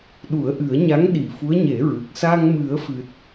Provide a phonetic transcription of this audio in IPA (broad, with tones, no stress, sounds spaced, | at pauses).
ɗ u˨˩˦ ə̯ ʔ ɨ˨˩˦ ə̯ ɲ a˧˥ ŋ ɗ i˨˩ f u˧˥ ə̯ ɲ e˨˩˦ ɹ ɨ˨˩ k̚ s a˧ ŋ m ɨ˨˩˦ ə̯ f ɨ˨˩ t̚